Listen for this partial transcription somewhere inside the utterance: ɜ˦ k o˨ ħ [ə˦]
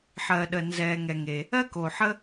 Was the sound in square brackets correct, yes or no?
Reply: yes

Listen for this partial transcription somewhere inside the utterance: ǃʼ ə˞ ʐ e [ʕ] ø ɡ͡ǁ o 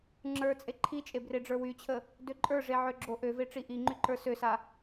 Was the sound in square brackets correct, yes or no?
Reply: yes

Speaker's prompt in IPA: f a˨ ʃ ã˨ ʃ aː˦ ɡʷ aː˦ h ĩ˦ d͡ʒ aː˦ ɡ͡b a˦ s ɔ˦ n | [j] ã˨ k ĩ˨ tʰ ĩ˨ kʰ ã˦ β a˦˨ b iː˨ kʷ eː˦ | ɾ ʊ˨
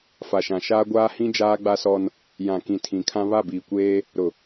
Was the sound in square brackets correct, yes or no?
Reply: yes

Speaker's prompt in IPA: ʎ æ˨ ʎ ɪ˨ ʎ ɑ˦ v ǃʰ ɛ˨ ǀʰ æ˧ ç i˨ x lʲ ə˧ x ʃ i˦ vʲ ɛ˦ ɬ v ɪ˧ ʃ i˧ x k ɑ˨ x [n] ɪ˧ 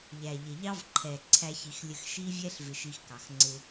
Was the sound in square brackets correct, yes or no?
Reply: no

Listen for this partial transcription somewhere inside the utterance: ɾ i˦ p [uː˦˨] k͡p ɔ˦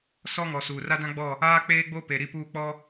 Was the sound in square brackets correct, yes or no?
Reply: yes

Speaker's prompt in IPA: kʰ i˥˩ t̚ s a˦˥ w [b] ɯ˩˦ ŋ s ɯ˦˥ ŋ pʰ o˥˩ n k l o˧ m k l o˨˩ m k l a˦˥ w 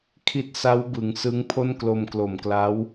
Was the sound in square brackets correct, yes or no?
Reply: yes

